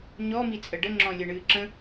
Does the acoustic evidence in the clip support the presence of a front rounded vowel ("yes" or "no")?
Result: no